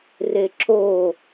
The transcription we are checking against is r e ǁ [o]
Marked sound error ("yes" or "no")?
no